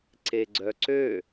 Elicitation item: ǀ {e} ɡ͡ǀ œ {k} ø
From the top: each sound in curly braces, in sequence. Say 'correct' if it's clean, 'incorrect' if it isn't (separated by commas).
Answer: correct, incorrect